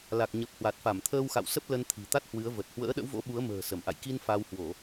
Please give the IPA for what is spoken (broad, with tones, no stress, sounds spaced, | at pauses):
l a˨˩ k̚ ɲ ə˨˩ p̚ h w a˨˩ t̚ f a˧˩ m t̪ʰ əː˧ w x a̰˧˨ w s ə˦˥ p̚ l ə˧ n t̪ʰ i̤˨˩ t̪ a˦˥ t̚ h w ɨ˨˦ ə̯ v ə˨˩ t̚ h w ə̰ː˧˥ ɗ ə̰˧˥ w v o̰˧˥ ɓ u˨˦ ə̯ m ə̤ː˨˩ s ə˧˩ m ʔ a̰˧˨ j k i˧ n f a˧ w h w o˧˩˨